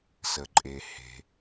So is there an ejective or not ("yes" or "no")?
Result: yes